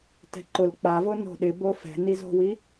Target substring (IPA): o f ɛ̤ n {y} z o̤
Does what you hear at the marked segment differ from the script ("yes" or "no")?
yes